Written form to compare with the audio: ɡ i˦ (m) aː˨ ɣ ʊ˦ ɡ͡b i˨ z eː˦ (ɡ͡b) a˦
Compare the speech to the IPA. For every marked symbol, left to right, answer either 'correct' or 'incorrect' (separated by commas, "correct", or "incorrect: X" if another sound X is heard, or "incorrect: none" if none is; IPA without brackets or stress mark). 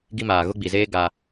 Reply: correct, incorrect: ɡ